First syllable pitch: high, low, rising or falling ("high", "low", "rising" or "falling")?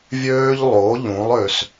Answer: high